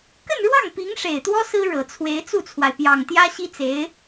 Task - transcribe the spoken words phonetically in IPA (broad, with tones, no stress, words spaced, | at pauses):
kə˥˧nɻwɑ˥˩ŋpi˧˥ŋ ʂe˨˩ɪ̯t̪wɔ˥ sɹ̩˥ ɻɤ˨˩t͡sʰwe˧˥ɪ̯ t͡su˥˩t͡sʰwa˩ɪ̯pjɑ˨˩ŋ t̪jä˥ ɕi˥t͡se˧˥ɪ̯